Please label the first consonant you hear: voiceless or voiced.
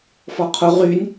voiceless